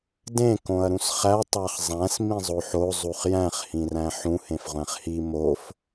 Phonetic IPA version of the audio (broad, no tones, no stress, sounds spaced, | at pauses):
d ẽ k õ ɐ̯ ɾ ũ s χ æ tˤ æ χ zˤ æ̃ s m ĩ zˤ o ħ o zˤ u χ j æ̃ χ h ĩ r æ̃ ħ ũ h ẽ f ʁʷ æ̃ χ h i m o f